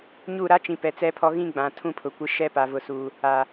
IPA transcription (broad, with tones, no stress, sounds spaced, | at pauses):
ɲ u˦˨ ɾ a˦ t͡ʃ ĩ˨ p ɛ˨ t͡s ɛ˦ pʰ ɔ˦ ɣ ĩ˦ ɡ͡b ã˨ tʰ ũ˦ pʰ ʊ˨ kʷ ɪ˦ ʃ ɛ˦ p a˨ v ʊ˨ s u˨ | a˨